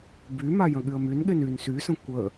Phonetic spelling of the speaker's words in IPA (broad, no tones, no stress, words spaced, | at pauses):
byma jə̃ɠyə̯mynɠen yn sysə̃ kʷə